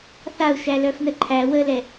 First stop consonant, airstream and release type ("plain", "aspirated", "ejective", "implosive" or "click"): click